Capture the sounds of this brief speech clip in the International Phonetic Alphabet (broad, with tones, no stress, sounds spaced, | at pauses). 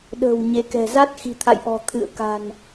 ɗ ə̤ː˨˩ w ɲ e˨˦ k ɛ̤˨˩ z a˦˥ t̚ x i̤˨˩ t̪ʰ a̰˧˨ j ʔ ɔ̤˨˩ t̪ʰ ɨ̰˧˨ ə̯ k a̤˨˩ n